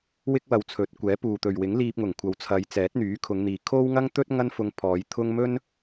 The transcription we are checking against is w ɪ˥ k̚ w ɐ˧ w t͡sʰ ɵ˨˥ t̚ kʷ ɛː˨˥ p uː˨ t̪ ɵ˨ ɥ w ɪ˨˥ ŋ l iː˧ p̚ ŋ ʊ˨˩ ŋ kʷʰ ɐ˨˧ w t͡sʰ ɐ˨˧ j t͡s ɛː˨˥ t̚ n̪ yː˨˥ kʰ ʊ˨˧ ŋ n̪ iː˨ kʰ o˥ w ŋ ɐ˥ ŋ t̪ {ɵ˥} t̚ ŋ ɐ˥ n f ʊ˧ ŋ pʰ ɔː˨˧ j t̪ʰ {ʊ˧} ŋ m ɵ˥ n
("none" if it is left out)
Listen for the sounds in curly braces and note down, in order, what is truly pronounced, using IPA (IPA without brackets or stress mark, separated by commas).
ɵ˥, ʊ˥